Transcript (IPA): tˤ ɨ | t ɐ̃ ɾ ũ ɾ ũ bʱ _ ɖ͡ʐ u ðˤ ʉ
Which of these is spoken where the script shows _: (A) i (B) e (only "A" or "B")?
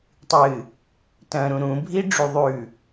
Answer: A